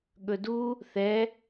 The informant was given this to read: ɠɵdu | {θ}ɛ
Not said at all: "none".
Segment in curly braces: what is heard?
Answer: θ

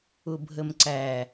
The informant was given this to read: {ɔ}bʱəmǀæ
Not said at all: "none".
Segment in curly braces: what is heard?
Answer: ʊ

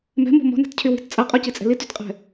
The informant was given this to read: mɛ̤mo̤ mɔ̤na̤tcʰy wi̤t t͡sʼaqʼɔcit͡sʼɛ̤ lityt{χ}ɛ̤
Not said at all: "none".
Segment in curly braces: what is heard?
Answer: qʼ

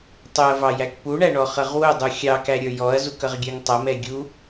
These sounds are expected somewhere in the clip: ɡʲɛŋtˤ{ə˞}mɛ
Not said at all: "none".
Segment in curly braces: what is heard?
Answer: ʌ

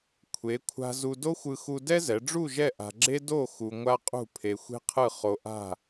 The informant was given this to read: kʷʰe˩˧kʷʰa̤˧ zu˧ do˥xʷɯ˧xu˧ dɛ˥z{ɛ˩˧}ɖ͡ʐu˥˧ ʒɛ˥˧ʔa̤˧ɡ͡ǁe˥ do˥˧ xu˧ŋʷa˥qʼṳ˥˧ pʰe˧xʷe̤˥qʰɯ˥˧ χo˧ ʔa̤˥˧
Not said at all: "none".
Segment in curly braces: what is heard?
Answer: ɛ˩˧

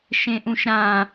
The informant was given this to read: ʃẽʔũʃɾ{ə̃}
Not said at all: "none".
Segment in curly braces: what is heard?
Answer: ã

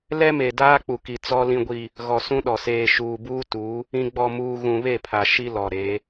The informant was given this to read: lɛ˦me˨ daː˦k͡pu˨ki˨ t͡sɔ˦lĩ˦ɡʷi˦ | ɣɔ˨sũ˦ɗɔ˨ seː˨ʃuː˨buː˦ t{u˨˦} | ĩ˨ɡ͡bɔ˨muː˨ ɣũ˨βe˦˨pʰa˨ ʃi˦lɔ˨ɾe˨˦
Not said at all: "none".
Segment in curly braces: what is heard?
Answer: u˨˦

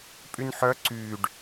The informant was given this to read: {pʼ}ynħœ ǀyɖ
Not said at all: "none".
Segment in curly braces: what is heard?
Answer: pʼ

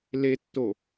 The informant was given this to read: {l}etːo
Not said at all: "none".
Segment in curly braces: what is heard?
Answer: l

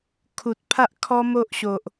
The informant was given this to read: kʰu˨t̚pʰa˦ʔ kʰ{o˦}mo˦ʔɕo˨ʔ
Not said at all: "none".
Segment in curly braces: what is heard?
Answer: ɔ˦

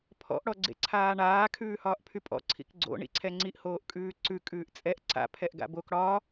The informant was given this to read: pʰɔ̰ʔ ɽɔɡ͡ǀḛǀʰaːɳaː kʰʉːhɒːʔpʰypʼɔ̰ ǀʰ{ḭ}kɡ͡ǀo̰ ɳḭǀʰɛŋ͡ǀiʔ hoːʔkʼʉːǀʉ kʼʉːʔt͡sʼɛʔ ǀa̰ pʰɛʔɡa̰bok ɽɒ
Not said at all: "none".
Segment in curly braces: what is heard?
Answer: ḭ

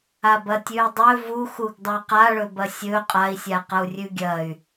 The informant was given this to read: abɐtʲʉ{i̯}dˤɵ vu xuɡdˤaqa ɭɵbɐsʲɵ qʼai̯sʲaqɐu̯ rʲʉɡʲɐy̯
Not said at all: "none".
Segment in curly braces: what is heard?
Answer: i̯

